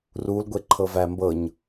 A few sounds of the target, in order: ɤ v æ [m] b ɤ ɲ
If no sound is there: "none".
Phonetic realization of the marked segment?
m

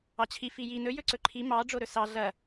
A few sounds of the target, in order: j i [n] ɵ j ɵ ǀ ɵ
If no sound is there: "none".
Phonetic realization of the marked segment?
n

